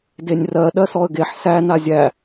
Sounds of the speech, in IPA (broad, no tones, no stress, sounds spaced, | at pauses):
d e nʲ r ɜ ɗ ɜ s ɔ ə̯ ɡ e ħ s æ n a zʲ æ